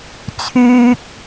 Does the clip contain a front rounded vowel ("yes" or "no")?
yes